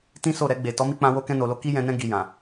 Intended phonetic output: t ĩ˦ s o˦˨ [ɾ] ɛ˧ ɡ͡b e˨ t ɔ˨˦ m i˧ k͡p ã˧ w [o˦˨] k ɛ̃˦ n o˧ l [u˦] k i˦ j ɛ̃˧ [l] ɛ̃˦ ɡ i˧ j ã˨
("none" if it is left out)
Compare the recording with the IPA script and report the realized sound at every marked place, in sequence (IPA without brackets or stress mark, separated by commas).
ɾ, o˦, o˦, n